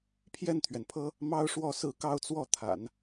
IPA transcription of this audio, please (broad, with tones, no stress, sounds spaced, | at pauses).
pʰ j ɛ˥˩ n t̪ʰ ɥ ɛ˩ n pʰ ɤ˥ | m ɑ˥ ʊ̯ ʂ w ɔ˥˧ s ɹ̩˥˧ k ɑ˥˧ ʊ̯ t͡s w ɔ˥˩ t̪ʰ a̰˨˩˦ n